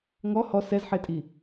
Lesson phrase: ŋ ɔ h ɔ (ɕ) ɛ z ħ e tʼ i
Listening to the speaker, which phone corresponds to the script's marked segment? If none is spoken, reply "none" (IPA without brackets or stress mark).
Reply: s